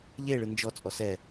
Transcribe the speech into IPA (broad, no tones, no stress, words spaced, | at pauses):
ʎeɭɯ nd͡ʒɔt͡sʼɔ sɛ